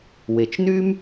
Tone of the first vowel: low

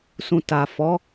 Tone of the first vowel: low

